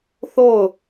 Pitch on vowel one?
falling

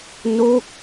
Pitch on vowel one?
falling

